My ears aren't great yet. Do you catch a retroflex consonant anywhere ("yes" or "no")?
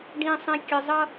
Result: yes